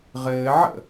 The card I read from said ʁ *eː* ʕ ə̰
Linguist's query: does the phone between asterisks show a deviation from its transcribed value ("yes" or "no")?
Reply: yes